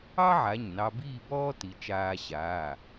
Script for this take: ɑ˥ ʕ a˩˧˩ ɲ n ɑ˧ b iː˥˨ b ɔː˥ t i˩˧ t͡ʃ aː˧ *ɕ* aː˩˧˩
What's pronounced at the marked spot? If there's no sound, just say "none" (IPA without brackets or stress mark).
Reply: ɕ